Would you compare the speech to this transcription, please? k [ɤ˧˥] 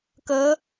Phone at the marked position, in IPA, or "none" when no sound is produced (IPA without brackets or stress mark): ɤ˧˥